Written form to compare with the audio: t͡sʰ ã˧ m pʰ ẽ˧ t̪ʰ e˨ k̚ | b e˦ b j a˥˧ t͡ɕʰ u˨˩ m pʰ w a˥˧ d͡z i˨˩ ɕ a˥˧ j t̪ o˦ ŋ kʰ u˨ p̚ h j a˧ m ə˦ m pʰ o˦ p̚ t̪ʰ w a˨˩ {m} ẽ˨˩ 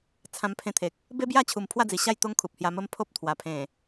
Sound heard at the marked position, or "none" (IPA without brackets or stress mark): pʰ